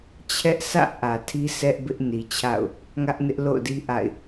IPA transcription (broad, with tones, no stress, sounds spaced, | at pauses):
t͡ɕʰ ɛ˦ ʔ s ä̰˦˨ ʔ ä˨ tʰ i˦ sʰ ɛ˦ ʔ b ɪ˦ ʔ n i˨ t͡ɕʰ a̰˦˨ ʊ̯ | ŋ ä˦ ʔ n ɪ˦ ʔ l o̰˦˨ ʊ̯ d i˦ ʔ a̰˦˨ ɪ̯